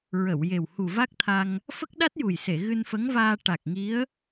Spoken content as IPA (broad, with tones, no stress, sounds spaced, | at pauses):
ɹ ə˨˩˨ w j e˨˩ w h u˨˩ v a˦˥ k̚ t̪ʰ a˧ ŋ | f ə˦˥ k̚ ɗ a˦˥ t̚ j u˨˩ j s e˨˩˨ ɣ ɨ˧ n f ə˧˥ ŋ v aː˧ ʈ a˨˩ k̚ ŋ i˧˥ ə̯